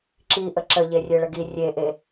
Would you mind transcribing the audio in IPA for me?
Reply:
ǁ i ʔ ə ǁ ə ʎ e rʲ e ɭ ə ɡ i rʲ e ʔ e

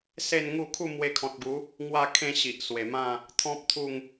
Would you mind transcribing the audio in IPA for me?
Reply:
s e˥˧ n ŋ u˥˧ kʰ u˥˧ m w e˧ kʰ ɔ̃˨ t̚ ɡ u˨˦ | ŋ w a˥˧ kʰ ẽ˥˧ ɕ i˨ ʔ s w e˨˩ m ã˥˧ | t̪ʰ ɔ̃˦ p̚ t̪ʰ u˥˧ ŋ

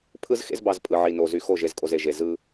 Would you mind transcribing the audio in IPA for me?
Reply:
pʰ ɯ˦ z x ḛ˦ z b ɑ˨ z pʼ ɯ˨ ʕ i˨ n o˨ z y˨ x o˦˨ ʒ e˨ z kʼ o˨ z e˨ ʒ e˨ z ɯ˦

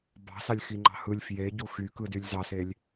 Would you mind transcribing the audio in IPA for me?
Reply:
b ɑ̤ s ɑ lʲ x i ŋ͡ǃ ɑ̤ h ɯ lʲ f j e ɟ u x y k ɯ d y lʲ z ɑ s e lʲ

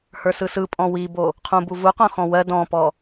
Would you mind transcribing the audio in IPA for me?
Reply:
h ə˞ s ɯ s ɯ pʼ ɔ̃ w i b o | qʰ ũ b u v u q õ x ɔ̃ w ɜ d ɔ̃ p ɔ

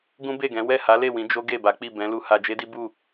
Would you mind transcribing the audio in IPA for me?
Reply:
ɡ ũ˦ b e˦˨ ɡ ɛ̃˨˦ w ɛ˦˨ h a˨˦ l e˦˨ w ĩ˨˦ d͡ʒ o˦ ɡ e˦˨ b a˨˦ k͡p i˦˨ b ɛ̃˨˦ l u˧ h a˧ d͡ʒ e˦ d i˦ b u˦˨

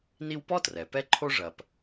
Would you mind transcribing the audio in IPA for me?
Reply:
n i˦ w p ɔ˥ t r ɛ˩ p ɛ˦ ǃʰ o˦ ʐ ɐ˨ p

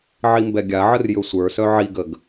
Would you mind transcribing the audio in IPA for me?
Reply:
ʕ i m b ɛ ɡʲ a ʕ ə r j ɵ sʷ ə˞ s œ ʕ i ɡ ə ɡ

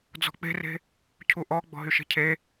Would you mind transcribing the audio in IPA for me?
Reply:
d͡z ɔ̤ k͡p e̤ r e̤ | cʰ u ʔ ɔ ɡ͡b ɔ̤ ɦ y ʃ e̤ cʰ e

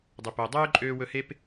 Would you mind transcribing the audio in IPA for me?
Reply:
dˤ o˨ p o˨ dˤ øː˦ ǃʼ øː˧ w ɵ˧ h e˦ p

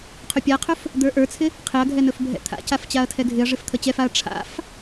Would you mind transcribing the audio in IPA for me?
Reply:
qʰ ʉ pʲ a qʰ ɵ f | d̪ ə˞ ʔ ə˞ t͡sʰ ɪ | qʰ ɪ ɐ̯ ɡʱ ɛ n ɵ f bʱ ɛ̰ t̪ʰ a̰ c a f t͡ɕ a ɐ̯ tʰ ɛ ɡʱ ɪ ɐ̯ ʐ ɪ f t̪ʰ ə t͡ɕ ɛ f a ɐ̯ ʈ͡ʂʰ a̰ f

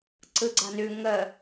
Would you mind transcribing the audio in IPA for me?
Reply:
ǀ ɯ ɡ͡ǀ a n ʉ ŋ ə

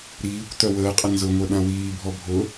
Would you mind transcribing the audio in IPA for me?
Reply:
ɾ iː kʷ t œ w əː qʼ ə n z ʊ ŋʷ œ ɗ ã w iː bʱ ɔ bʱ ʊ

